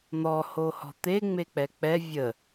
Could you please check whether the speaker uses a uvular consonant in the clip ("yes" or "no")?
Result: no